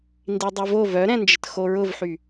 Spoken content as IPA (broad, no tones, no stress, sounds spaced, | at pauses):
n d i dˤ ø v o v œ ɾ ɛ̃ n d͡ʒ ə t x o ɹ ʊ v ħ y